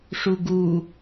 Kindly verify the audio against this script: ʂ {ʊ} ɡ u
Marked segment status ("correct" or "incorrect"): incorrect